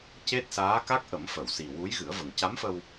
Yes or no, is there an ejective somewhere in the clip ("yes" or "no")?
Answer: no